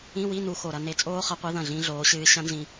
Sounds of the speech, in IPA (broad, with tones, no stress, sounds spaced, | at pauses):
ĩ˧˥˧ w i˧˥˧ n u˧ x o˨˩ ɾ ɐ˧ n e˨˥ t͡sʼ oː˦˥ χ ɐ˨˥ qʷ i˨˥ ð ɐ̃˥˩ ɮ ĩ˦˥ ɮ oː˨˥ ɕ ɨː˦˥ ɕ ɐ̃˦˥ n z ĩ˧